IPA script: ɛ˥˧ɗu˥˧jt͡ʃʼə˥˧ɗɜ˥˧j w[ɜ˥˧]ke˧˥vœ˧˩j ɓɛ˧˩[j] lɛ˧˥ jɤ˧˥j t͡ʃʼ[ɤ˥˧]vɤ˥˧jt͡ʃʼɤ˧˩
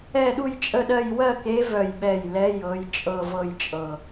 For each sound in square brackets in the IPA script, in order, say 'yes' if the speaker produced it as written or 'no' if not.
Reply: yes, yes, yes

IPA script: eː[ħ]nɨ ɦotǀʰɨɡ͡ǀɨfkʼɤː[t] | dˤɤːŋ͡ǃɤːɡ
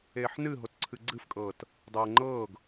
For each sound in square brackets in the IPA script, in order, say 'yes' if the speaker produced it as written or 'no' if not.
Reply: yes, yes

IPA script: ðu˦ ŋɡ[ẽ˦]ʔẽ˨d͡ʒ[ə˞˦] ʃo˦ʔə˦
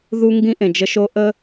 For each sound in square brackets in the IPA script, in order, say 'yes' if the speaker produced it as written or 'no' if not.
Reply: no, no

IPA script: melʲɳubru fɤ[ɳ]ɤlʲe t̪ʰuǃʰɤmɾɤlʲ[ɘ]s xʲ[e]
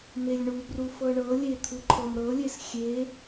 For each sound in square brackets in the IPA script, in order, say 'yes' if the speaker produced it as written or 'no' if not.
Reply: yes, no, yes

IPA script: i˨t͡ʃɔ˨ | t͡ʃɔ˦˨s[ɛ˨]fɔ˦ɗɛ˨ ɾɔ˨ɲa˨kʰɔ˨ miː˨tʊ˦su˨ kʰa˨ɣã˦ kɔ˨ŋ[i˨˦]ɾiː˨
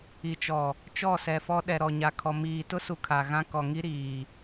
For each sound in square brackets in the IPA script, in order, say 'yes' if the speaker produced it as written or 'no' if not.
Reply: yes, no

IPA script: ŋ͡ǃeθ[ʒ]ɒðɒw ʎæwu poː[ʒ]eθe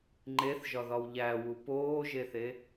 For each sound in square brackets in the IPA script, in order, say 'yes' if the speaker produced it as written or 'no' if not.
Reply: yes, yes

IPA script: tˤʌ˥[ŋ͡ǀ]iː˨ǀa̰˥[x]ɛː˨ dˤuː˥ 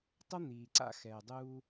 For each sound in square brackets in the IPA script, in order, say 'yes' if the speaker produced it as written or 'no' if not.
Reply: no, yes

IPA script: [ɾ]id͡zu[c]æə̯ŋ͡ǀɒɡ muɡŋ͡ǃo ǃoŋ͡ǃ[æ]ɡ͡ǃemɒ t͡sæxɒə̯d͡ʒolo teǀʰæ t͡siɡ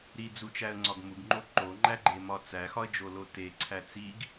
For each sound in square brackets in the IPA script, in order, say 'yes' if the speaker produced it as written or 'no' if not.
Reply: yes, no, yes

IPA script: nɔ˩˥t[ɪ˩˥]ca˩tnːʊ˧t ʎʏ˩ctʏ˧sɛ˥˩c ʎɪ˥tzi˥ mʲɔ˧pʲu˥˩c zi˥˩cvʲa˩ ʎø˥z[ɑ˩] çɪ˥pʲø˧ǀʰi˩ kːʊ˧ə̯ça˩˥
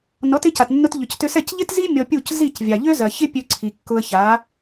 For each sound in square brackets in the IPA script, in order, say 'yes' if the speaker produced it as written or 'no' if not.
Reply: yes, no

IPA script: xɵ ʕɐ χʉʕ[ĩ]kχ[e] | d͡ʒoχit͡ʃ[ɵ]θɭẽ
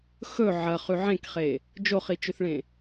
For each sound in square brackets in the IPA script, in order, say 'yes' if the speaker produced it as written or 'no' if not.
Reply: no, yes, yes

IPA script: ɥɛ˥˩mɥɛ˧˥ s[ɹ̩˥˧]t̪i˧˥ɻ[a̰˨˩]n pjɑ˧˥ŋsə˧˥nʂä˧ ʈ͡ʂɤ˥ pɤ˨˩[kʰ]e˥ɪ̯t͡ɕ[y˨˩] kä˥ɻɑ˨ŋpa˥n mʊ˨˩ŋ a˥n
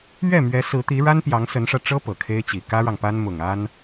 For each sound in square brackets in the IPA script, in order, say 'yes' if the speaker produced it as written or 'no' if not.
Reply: no, no, yes, no

